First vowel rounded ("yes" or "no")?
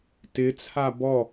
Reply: no